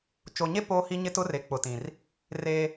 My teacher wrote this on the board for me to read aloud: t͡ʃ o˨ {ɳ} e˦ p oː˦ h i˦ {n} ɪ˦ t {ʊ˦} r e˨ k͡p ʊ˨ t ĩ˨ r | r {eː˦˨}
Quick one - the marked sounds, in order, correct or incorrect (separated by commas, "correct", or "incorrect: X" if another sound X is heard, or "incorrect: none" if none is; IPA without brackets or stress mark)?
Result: incorrect: ɲ, incorrect: ɲ, correct, incorrect: eː˦